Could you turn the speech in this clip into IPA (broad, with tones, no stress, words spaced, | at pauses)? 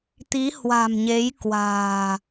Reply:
t̪i˨˦hwa̤˨˩mɲe˨˦j kwa̤ː˨˩